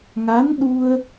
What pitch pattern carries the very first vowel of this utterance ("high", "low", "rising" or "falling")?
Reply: rising